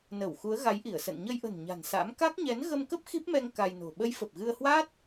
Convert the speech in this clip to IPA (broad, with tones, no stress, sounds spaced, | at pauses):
n ə˧˩ w x u˨˦ ə̯ ɣ a˨˦ j ʔ i˧˩ ə̯ s ə̰˧˨ n ɲ ə˧ j ʔ ə̤˨˩ n ɲ a̤˨˩ n s a̰˧˥ m k a˦˥ k̚ ɲ ɛ˨˦ n ɣ ə˧ m k ə˦˥ p̚ x i˦˥ p̚ m ɛ˧ ŋ k a˧ j n o̤˨˩ ɓ ə˨˦ j f ə˨˩ p̚ ɣ ɨ˧ ə̯ h w aː˦˥ t̚